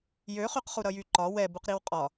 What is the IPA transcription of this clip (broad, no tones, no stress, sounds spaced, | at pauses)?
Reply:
j ø χ y q χ u ɾ ʌ j y ǃ ɒ w ɛ b u q ɾ i w qʼ ɒ